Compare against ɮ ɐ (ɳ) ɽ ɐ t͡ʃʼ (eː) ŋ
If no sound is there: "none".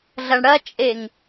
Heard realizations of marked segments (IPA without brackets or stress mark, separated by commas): ɳ, e